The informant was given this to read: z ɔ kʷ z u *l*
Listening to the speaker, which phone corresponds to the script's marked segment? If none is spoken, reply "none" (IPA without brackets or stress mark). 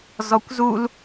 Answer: l